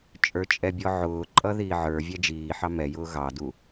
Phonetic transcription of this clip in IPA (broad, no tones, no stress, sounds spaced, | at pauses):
t͡ʃʼ ə˞ t͡ʃʼ ɛ bʲ ɔ ʕ ʊː ǃʼ ʌ ð iː ʕ ə˞ vʲ æ d͡ʒ iː ħ ɑ m ɛ j ʊː ɣ ɑ d u